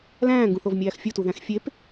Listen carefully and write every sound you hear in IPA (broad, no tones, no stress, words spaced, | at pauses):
læ̃ːŋɡũθovmʲæːx fʲutuðæ̃x fʲep